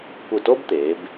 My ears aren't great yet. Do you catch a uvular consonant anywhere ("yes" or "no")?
no